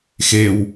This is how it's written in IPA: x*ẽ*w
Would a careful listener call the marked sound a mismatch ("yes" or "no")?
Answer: yes